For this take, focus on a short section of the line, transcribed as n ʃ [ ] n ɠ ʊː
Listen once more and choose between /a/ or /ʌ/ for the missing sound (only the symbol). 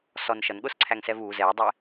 ʌ